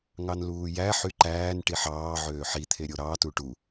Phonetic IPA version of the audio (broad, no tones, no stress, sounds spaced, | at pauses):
ŋ ɑ n l uː j æ ħ y ǃ æː n ʈ i ħ ɑː ʕ øː ħ i t̪ʰ e ɾʲ o ɾ ɑ t u ʈ u